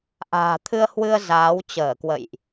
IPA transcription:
ʔa̤ː˨˩t̪ʰɨ˧ə̯hwɨ˧ə̯ zaː˨˦w t͡ɕəː˧˩kwə̰˧˨jʔ

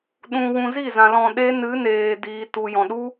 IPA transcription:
ɗũ˧wũ˧ zi˦˨zã˨ lɔ̃˧ɗeː˦ nɨ˨˦ neː˨ diː˨ tu˨jɔ̃˨ɗu˦

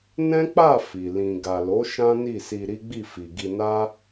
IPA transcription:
nɛ̃˦k͡pa˦˨ fi˨ lĩ˨ɡa˨lo˨˦ ʃã˦ni˦˨si˧ ɾi˦ɡ͡bi˦˨fi˨ ɡi˧na˦

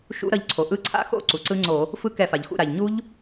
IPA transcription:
ʃṵ˦˥ɾʌ˧ʎ ǀʰo˩ʔɯ˦˥ ǀʰa̰˦˥xo̰˦˥ ǀu˩ǀɯ˦˥ŋ͡ǀo˧˩˧ | fɯ˦˥kɛ˧˩˧fa˩ʎxṵ˧˩˧ ɾa˩ʎɲu˦˥ʎ

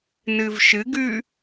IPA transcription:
nɨvʃɨɡʉ

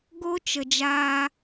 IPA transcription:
ɡo˦t͡ʃə˨d͡ʒaː˧

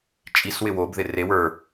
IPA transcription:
t͡ʃʼis wɪwob ðɪre wə˞

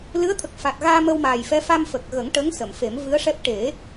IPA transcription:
lɨ˧˥ə̯t̪ʰə˨˩k̚ fa˨˩t̚ɣaː˧ mə˧wmaː˨˩jfɛ˧˥ fa˧mfə˨˩k̚ɣə˨˩˦ŋ ʈə˧˥ŋ sə˨˩˨mfe˨˩˦mvɨ˧˥ə̯ʂɛ˦˥p̚ ʈe˨˩˦

